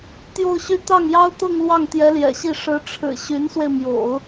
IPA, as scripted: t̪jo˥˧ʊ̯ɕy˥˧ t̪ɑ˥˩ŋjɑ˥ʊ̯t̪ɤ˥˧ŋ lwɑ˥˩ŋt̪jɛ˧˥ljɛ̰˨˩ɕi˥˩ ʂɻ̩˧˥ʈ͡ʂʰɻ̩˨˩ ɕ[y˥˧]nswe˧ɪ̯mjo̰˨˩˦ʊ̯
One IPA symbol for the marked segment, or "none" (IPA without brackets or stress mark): y˧˥